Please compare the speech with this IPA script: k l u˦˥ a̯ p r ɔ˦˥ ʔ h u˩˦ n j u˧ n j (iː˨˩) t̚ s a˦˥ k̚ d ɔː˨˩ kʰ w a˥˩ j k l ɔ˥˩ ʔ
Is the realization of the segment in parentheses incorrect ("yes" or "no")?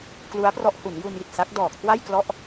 yes